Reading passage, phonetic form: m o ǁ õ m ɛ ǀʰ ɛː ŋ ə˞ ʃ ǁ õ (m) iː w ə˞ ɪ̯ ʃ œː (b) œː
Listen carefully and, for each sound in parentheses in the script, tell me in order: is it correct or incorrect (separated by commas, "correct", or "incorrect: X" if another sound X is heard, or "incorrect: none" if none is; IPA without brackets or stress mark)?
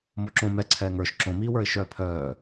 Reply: correct, incorrect: pʰ